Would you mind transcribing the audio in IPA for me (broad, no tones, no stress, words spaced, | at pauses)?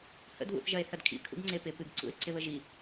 hə̰dβṵθʒɐe̯ θɐdkʰḭkʰṵɡ ŋ͡ǀepɪ pɨɡǀṵe̯ ǀɪβəʒi